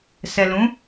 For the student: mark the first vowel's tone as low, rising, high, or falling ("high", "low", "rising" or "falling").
low